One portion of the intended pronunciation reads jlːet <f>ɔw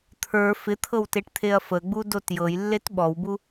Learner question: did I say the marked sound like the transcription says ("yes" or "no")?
no